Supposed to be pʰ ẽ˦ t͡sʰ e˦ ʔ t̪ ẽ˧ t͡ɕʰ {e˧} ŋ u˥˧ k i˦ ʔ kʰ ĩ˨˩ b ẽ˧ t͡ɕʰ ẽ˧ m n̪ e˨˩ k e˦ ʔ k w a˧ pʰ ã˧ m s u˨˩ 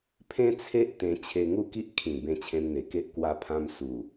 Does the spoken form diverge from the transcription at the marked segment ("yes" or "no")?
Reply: no